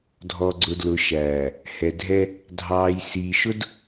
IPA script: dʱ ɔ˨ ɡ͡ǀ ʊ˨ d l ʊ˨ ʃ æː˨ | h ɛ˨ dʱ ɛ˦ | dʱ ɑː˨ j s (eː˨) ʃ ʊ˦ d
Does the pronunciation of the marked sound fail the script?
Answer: yes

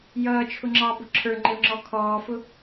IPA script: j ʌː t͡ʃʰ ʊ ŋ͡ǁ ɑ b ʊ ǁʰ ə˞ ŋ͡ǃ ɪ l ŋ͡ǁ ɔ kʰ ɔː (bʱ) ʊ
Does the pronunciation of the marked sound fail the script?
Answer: yes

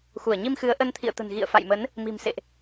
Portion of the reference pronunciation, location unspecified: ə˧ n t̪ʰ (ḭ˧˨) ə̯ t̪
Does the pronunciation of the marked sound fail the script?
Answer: no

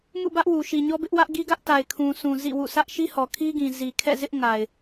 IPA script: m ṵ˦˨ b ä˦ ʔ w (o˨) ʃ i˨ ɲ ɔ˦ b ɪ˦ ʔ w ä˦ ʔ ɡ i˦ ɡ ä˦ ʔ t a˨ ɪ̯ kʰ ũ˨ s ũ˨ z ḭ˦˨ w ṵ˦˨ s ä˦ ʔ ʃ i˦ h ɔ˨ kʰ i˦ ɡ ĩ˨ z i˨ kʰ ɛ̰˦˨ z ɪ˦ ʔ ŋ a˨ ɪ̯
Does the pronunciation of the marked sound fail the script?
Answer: yes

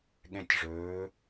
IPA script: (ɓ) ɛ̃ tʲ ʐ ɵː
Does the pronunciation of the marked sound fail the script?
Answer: yes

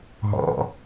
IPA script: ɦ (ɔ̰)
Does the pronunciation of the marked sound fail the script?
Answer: no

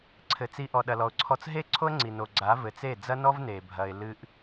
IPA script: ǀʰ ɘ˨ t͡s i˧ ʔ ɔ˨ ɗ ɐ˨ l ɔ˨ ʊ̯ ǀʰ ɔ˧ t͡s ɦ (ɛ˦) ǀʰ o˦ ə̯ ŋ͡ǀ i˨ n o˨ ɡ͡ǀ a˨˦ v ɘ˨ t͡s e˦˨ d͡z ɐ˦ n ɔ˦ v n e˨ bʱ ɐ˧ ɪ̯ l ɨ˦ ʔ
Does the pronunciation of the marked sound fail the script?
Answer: yes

